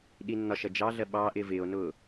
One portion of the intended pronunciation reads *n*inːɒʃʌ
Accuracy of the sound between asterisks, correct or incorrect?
incorrect